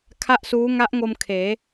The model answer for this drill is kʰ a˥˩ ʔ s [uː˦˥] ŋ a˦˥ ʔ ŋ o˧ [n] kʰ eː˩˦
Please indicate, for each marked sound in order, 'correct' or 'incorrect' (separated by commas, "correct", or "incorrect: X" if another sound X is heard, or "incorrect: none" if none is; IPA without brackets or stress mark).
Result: correct, incorrect: m